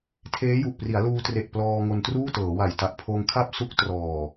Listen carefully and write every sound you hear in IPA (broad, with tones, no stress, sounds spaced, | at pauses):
tʰ eː˦˥ j u˨˩ ʔ p r i˩˦ a̯ l uː˧ t r e˨˩ ʔ p l ɔː˧ ŋ o˧ n t r uː˥˩ t ɤː˩˦ w a˨˩ j t a˨˩ ʔ pʰ oː˧ ŋ kʰ a˥˩ p̚ s u˦˥ k̚ t r ɔː˨˩